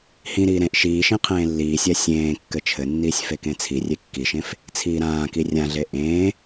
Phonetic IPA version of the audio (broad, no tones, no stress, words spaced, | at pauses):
hĩɾiː ɾẽʔ ʃiːʃĩ qʰẽːlːiːsʲa sʲẽː kːɘt͡ʃʰɘnːiːsʲ fekẽt͡sʰirʲe kːiʃẽf | t͡sʰiːɾãːki rʲãɮe ʔẽː